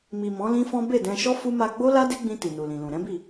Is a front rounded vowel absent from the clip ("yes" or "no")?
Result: yes